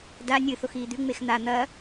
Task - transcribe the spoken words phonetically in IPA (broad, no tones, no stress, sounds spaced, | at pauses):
d a nʲ ɨ θ o x iː d̪ ʉ ŋ͡m e x n̪ a n̪ ɐ